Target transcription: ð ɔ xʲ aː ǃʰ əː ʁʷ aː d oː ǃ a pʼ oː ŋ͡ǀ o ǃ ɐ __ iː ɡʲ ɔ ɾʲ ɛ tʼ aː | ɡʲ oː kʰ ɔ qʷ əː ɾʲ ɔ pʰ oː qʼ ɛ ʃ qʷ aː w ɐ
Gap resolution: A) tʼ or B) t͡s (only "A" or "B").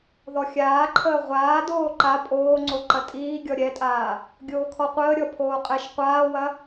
A